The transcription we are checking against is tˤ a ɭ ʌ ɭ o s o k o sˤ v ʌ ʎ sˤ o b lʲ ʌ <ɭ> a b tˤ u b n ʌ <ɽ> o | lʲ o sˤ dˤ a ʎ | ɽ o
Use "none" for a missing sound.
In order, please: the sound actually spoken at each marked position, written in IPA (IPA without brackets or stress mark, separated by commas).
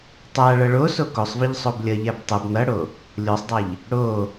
ʎ, ɽ